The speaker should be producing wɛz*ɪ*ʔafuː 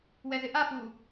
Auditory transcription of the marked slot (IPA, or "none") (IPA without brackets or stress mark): ɪ